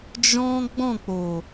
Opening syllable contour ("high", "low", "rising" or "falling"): high